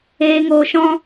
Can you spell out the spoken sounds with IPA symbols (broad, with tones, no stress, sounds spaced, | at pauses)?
eː˨ ŋ oː˨ ʃ ɔ̃˧